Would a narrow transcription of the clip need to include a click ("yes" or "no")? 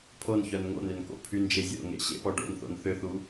no